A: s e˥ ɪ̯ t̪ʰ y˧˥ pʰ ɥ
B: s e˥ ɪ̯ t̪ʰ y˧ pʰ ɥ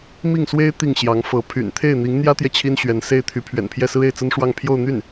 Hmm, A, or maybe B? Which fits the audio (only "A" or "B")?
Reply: A